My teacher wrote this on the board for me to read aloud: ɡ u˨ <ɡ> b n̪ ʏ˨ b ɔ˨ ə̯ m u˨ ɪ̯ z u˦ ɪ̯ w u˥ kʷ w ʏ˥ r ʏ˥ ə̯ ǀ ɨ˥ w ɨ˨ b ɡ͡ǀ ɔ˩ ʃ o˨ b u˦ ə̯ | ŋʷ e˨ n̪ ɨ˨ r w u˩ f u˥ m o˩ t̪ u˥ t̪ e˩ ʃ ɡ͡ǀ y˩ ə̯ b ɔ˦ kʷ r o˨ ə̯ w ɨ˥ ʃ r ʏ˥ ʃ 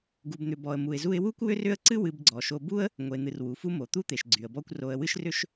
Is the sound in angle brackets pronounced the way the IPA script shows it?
no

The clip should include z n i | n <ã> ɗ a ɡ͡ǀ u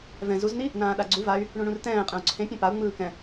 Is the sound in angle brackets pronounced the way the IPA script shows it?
no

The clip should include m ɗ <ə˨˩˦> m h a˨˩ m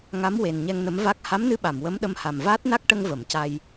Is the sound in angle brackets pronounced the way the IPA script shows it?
no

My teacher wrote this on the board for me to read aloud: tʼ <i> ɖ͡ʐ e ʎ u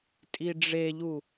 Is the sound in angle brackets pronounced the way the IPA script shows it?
yes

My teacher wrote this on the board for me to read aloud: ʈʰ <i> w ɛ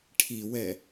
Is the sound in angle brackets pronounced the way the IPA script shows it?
yes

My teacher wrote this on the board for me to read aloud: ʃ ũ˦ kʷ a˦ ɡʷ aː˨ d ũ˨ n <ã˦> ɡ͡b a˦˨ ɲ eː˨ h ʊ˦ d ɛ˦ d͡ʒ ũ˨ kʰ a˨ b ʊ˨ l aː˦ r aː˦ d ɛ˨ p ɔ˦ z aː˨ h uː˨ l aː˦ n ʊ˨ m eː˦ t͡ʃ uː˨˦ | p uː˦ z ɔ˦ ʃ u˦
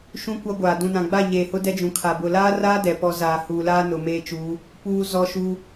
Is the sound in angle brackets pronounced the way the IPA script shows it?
no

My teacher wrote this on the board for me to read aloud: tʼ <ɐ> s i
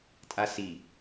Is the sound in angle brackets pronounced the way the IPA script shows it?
no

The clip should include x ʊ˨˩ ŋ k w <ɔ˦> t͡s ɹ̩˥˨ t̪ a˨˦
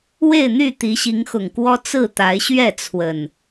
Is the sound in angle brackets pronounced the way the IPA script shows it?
yes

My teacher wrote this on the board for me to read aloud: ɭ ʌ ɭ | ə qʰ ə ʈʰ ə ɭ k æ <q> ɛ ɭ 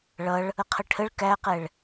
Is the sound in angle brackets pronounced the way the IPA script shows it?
yes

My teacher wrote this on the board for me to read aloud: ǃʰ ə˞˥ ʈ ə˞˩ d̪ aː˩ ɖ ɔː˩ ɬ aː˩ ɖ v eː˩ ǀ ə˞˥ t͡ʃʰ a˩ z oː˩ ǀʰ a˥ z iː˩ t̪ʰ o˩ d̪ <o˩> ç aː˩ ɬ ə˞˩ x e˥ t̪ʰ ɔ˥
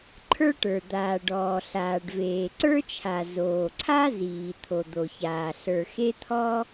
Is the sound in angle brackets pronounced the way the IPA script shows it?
yes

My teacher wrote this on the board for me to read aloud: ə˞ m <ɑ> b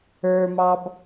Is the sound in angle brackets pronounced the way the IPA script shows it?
yes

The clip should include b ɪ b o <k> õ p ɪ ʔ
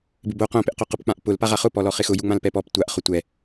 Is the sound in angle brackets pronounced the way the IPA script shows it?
no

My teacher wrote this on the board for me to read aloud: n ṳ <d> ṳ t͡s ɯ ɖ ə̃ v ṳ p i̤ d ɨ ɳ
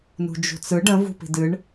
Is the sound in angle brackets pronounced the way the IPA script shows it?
no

